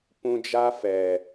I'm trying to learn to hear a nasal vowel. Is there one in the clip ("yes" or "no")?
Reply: yes